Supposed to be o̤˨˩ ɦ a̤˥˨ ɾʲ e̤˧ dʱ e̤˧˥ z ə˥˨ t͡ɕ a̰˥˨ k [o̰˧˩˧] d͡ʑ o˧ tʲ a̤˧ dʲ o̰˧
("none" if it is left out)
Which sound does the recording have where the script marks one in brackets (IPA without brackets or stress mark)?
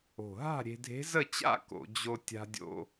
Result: o̰˧˩˧